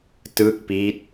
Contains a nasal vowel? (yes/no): no